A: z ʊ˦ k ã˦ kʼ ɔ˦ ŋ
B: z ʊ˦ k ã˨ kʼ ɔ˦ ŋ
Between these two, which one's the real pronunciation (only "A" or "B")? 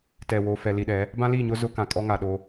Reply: B